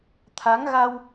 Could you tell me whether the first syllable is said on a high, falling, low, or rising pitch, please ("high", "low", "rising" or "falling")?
rising